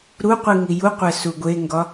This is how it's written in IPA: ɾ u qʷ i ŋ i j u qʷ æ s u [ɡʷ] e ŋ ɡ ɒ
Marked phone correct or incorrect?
correct